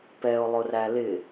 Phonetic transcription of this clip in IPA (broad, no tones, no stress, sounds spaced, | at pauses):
p ɛ o̯ lˠ ʊ r æ l ɪ